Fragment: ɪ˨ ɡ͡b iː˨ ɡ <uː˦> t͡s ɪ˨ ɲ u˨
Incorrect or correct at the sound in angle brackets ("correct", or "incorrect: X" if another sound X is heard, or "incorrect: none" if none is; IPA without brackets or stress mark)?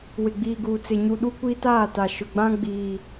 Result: incorrect: uː˨